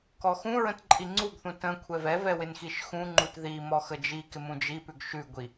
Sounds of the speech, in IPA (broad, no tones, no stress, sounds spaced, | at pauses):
k ɔ x ũ ɹ ə̃ t ǃʼ i ŋ͡ǀ u ɡ θ ũ t ə̃ kʷʰ ɛ v ɛ v ɛ w ɪ n x i ʃ x ũ ŋ͡ǃ u t ð i m ɔ x ə d͡ʒ i k ɪ m ũ d͡ʒ i p ʉ ɡ ʃ ʉ ɡʷ i